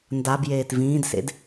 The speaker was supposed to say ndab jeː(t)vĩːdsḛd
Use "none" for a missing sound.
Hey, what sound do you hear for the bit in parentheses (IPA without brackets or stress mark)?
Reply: t